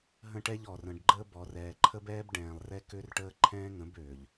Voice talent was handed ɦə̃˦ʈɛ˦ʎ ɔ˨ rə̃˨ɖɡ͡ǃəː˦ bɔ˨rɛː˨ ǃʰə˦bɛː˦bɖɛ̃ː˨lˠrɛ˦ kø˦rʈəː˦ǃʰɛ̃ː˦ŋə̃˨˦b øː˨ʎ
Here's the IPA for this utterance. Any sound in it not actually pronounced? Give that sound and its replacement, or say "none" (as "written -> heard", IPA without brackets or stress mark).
none